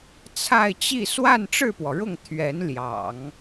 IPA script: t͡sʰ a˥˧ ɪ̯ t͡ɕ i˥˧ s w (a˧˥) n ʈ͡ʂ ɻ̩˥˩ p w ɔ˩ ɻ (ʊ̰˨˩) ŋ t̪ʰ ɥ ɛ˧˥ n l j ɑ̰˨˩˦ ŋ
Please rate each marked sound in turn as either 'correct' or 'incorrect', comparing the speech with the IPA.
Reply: incorrect: a˥˧, incorrect: ʊ˥˩

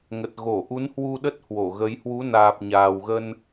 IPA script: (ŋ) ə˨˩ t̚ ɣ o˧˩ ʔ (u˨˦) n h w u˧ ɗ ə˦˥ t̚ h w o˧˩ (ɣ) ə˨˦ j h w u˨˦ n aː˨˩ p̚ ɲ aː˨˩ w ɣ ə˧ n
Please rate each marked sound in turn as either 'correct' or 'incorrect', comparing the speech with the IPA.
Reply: correct, correct, correct

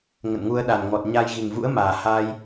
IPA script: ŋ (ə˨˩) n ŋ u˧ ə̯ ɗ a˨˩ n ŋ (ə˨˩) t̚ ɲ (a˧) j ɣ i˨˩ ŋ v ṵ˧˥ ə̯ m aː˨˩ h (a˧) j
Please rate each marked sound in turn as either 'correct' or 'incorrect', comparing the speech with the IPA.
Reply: incorrect: ə̰˧˨, incorrect: ɔ˨˩, correct, correct

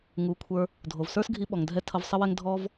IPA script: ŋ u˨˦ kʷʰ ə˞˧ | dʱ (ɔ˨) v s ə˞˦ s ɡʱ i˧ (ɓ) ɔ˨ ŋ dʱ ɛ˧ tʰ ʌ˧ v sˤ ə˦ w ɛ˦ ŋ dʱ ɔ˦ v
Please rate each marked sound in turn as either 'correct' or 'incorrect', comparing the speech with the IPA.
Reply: incorrect: o˨, correct

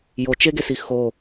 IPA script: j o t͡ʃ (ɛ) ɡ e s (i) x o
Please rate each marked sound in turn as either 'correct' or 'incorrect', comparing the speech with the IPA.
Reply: incorrect: e, correct

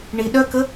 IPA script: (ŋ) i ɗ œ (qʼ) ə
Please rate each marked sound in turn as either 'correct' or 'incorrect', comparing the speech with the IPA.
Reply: incorrect: ɳ, incorrect: k

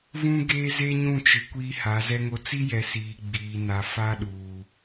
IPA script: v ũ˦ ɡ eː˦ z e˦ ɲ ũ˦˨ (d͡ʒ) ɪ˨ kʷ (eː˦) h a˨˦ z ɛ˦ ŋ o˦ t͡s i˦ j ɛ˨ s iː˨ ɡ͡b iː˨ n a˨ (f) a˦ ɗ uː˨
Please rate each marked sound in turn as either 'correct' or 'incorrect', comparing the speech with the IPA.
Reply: incorrect: t͡ʃ, incorrect: iː˦, correct

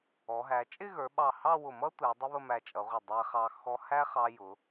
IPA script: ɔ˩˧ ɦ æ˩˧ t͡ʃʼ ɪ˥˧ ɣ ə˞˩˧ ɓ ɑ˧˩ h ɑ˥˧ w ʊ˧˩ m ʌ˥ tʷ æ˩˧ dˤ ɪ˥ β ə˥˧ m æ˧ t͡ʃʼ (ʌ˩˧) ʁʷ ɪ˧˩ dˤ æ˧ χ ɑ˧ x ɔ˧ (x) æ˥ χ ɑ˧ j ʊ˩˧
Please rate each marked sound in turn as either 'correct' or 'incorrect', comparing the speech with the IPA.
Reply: correct, incorrect: h

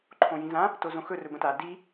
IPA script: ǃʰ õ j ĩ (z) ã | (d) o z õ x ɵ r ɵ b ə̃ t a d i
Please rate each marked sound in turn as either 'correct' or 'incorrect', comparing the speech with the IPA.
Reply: correct, incorrect: t

